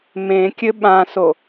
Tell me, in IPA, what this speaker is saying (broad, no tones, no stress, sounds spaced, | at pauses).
m ẽ kʲ ɘ ɓ ã s o